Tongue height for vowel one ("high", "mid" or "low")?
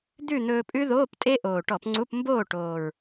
high